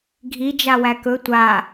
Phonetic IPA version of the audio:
ɡʱ i d͡ʒ a w æ k ɵ tʷ a

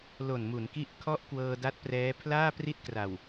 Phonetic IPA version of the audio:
l o˨˩ n m u˩˦ n k i˦˥ ʔ kʰ ɔ˦˥ ʔ k w ɤː˧ d a˦˥ t̚ p r ɛː˦˥ pʰ l aː˥˩ p r i˥˩ t̚ k r a˨˩ w

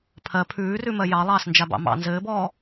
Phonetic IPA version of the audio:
pʰ ɜ pʰ ʉː r ʉ m ɜ j ɑ lˠ ɑː s n d͡ʒ a b ɑ̰ m ɑ̰ n z ɘː b ɔː

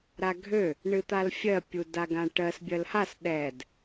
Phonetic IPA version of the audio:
ɾ a ɡʱ ø | ɳ ɨ t̪ a l fʲ ɜ pʲ u d a ɡ ã ʈ ɜ s bʲ ɜ l h a s ɗ ɛ d

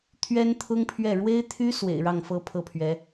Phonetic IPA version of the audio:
t̪ʰ ɥ ɛ˥ n t̪ʰ ʊ˥ ŋ pʰ ɥ ɛ˥˩ ɻ w e˥ ɪ̯ t̪ʰ y˥ s w ḛ˨˩ ɪ̯ ɻ ɑ˥˩ ŋ f ɤ˥ pʰ ɤ˥˩ pʰ ɥ ɛ˧˥

